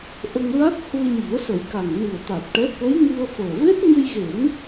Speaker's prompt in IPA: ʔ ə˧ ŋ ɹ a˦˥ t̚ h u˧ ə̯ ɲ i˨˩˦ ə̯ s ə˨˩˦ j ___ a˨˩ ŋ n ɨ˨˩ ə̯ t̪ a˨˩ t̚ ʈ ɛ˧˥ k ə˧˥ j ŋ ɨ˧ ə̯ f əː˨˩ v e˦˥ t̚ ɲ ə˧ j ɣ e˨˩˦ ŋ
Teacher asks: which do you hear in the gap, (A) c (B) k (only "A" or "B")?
B